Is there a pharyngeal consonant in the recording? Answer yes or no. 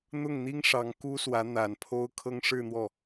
no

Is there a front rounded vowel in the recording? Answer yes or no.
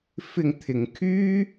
yes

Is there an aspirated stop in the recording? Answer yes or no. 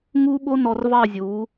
no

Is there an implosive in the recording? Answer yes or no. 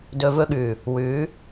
yes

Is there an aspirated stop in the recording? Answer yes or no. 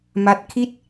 yes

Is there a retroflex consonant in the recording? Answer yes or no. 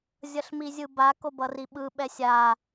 no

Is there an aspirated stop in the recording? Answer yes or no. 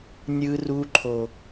yes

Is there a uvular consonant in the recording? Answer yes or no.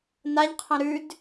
yes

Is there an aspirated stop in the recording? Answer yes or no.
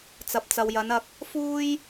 no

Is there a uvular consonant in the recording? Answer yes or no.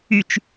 no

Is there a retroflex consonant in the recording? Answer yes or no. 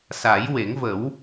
no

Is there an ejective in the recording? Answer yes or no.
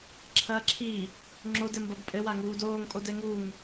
yes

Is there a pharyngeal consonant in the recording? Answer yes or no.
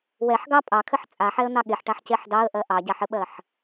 yes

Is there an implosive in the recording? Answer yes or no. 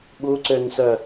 yes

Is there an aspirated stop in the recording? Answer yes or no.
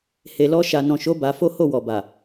no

